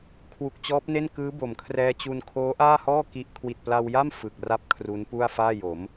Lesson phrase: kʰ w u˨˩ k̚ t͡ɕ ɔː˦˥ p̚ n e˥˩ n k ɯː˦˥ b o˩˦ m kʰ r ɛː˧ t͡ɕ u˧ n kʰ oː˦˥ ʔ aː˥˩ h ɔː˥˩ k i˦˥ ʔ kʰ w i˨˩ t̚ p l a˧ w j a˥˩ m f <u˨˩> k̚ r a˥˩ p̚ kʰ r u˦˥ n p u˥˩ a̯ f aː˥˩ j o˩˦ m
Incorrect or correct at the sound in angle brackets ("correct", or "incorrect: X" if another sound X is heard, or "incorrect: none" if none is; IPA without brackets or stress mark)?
incorrect: ɯ˨˩